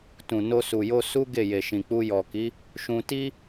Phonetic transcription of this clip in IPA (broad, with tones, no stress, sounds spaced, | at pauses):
t ũ˨ n o˧ s u˨ j o˧ s u˦ ɡ e˦˨ j e˨ ʃ ĩ˨ k͡p u˧ j ɔ˨ k i˨˦ | ʃ ũ˧ t i˦